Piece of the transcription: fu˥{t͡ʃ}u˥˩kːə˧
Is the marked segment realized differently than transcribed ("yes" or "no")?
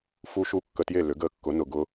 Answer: yes